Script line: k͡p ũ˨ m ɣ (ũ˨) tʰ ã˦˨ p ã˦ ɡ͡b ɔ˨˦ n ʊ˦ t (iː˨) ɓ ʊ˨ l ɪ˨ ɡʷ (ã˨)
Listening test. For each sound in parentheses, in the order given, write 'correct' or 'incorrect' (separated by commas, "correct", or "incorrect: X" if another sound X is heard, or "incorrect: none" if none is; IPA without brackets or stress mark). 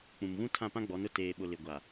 incorrect: ũ˦, incorrect: eː˨, incorrect: a˨